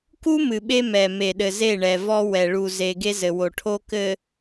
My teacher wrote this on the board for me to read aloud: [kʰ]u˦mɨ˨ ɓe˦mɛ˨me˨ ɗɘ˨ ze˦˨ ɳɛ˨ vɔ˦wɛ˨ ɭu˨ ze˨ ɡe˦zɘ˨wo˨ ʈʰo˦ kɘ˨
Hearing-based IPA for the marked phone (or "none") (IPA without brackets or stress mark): k